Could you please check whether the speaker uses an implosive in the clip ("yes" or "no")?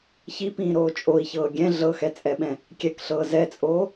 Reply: yes